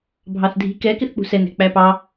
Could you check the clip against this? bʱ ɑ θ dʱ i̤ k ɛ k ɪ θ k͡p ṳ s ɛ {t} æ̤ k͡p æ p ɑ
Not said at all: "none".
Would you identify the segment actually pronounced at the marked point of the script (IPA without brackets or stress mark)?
n